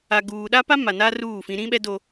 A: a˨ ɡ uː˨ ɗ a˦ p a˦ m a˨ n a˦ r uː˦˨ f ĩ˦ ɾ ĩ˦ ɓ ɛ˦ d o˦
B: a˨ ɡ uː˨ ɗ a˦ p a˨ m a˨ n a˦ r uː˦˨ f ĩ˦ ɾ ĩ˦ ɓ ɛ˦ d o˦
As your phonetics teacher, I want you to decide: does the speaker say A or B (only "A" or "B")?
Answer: A